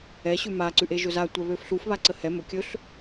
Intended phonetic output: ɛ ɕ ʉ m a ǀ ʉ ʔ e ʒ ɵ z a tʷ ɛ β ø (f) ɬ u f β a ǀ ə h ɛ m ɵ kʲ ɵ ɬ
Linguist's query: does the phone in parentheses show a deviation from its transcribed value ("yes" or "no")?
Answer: no